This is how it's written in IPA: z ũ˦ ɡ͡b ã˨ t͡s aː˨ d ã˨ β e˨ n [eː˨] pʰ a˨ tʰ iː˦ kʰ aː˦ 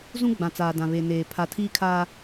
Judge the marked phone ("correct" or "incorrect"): correct